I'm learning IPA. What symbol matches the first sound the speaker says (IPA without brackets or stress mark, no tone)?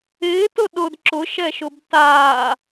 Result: ɪː